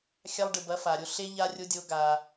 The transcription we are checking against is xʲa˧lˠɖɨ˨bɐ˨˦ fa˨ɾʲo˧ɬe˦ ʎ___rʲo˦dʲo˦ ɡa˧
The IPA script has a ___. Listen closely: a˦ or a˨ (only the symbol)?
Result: a˦